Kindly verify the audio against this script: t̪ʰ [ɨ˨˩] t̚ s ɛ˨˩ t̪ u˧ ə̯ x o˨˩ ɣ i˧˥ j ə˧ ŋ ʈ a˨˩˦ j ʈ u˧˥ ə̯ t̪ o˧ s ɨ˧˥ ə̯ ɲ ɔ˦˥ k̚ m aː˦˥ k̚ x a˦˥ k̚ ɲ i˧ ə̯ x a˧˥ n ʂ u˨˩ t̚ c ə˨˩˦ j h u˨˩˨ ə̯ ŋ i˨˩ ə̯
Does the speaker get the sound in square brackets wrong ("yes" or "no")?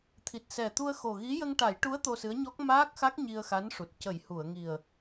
yes